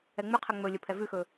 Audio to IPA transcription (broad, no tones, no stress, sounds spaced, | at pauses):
ɛ ŋ͡m ʉ qʰ ɛ ŋ͡m ɵ lʲ ə pʰ ɛ v ʉ x ɵː